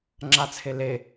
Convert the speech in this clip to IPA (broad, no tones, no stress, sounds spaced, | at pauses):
ŋ͡ǁ a t͡sʰ e l e